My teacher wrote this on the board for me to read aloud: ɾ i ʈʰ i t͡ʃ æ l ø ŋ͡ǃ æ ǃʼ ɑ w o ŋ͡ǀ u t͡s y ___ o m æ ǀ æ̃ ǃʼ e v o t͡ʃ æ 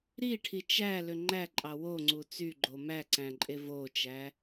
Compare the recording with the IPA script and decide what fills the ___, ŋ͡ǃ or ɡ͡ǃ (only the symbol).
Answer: ɡ͡ǃ